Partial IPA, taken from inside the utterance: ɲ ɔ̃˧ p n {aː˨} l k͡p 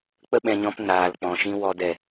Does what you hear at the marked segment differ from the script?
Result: no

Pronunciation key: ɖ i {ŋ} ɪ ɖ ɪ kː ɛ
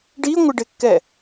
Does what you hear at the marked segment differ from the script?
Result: yes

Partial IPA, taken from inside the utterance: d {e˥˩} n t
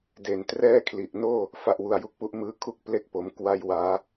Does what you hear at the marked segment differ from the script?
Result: yes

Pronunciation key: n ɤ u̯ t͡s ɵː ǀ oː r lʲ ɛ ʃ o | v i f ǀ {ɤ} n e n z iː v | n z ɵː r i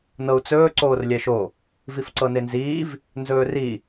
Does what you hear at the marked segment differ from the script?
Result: no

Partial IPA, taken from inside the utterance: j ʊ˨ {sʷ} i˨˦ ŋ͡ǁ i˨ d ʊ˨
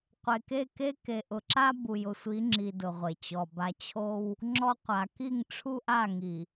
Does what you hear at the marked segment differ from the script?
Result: no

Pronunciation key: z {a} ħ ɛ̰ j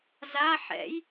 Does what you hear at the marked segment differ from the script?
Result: no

